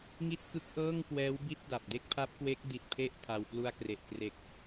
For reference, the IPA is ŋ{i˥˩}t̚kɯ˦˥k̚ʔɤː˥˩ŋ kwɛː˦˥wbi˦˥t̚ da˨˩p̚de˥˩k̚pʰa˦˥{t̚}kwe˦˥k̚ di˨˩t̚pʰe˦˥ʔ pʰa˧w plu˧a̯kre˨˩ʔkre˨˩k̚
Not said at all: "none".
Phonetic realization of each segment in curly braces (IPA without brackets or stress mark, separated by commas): i˥˩, p̚